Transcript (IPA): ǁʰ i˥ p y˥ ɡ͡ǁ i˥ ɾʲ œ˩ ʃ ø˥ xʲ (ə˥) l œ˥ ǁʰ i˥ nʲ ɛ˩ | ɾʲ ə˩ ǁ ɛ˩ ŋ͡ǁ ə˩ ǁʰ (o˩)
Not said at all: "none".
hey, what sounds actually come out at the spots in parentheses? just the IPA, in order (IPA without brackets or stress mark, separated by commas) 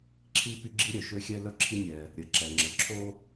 ɛ˥, o˥